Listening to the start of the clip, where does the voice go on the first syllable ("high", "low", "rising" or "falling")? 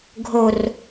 low